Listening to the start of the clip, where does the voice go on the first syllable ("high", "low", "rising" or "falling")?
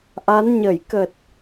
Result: rising